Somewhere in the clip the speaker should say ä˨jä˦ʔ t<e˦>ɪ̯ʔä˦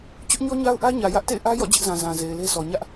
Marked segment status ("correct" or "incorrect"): incorrect